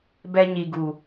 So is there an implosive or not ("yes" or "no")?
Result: no